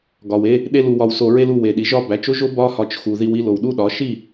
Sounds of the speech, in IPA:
ɡɒ˨w e˧ | ɗe˦ lu˧wɒ˧wso˧ɹe˦l u˧we˨ɗi˨ ʒɒ˦˨bæ˨˦t͡ʃo˦ʒo˦ bɒ˦hɒ˧t͡ʃ xu˨ði˧w i˦ lo˨wɗu˦ɗɒ˨˦ ʃi˦˨

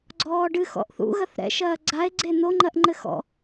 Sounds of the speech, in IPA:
ɡ͡ǀɔːɖɨxɔ̰ʔ θṵ ɣɐθɾɛ̰ʃɐː ɡ͡ǀae̯ ɡ͡ǀen̪oŋ͡ǃɐʔ ŋ͡ǃɘxɔ̰

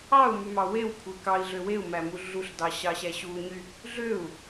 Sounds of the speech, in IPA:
ɑu̯mymɑ wewkʷʰe kɑi̯ɮø weu̯mæmu ɮuɬdɑɕɑɕæ ɕuɲy | ɮøu̯

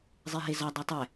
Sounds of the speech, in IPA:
zˤeɦezɒ dˤɛtˤɛ

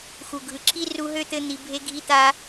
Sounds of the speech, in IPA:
xu˨ɡʱɯ˨ǁi˦ ru˧ɦø˦t̪ɘ˧ n̪i˨ bʱe˧ɡʱi˧ t̪a˦

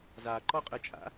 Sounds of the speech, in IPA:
zaǃɔqʼət͡ʃʼa̰

